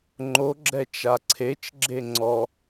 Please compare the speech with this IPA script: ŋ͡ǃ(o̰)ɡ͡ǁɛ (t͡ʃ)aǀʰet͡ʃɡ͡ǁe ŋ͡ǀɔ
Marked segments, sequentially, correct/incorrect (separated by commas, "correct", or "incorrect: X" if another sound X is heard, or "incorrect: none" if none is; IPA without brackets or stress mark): incorrect: o, correct